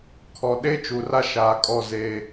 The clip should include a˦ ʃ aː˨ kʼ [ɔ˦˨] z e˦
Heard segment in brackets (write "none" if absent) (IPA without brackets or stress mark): ɔ˦˨